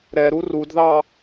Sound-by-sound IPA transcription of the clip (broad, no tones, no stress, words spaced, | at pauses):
ɾɛɾu rudðɑ